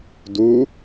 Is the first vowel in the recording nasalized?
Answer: no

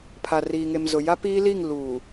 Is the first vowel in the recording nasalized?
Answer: no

